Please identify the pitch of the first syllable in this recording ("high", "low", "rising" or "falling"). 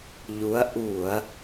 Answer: rising